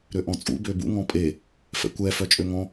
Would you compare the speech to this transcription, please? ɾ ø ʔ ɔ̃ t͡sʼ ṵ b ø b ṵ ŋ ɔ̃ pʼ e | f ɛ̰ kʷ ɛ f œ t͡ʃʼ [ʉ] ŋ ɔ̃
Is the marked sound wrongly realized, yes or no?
yes